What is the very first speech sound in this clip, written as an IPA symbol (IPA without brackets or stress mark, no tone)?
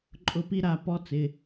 ǃʼ